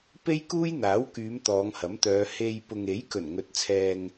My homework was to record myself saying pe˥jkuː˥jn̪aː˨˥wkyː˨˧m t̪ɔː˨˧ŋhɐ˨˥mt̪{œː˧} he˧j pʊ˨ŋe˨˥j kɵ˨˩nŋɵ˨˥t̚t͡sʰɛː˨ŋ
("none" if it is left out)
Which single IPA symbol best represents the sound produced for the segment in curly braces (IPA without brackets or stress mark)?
œː˨˧